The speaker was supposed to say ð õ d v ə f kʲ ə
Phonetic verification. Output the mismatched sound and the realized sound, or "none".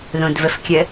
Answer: none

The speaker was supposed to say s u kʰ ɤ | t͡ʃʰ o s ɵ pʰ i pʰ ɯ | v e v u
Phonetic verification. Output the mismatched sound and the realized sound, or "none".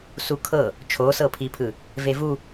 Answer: ɵ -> ɤ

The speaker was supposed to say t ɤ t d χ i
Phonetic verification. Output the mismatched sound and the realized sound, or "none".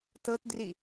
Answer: χ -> r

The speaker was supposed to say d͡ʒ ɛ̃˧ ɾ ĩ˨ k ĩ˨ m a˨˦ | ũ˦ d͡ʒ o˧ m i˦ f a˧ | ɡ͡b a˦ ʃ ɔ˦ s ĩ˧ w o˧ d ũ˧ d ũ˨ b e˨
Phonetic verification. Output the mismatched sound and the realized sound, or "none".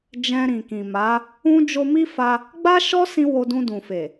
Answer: b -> f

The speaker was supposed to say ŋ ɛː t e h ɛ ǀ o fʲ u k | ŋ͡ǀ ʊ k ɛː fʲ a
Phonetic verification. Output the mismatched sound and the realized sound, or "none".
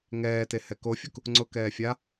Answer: ǀ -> k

